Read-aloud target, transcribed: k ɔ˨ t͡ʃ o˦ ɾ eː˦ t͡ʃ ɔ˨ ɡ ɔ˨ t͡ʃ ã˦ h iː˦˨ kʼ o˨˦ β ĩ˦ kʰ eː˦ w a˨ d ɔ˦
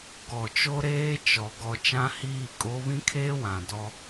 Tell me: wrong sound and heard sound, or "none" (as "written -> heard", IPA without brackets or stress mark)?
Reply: a˨ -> ã˨